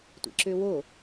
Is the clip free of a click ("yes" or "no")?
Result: no